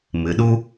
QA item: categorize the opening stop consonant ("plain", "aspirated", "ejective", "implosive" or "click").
implosive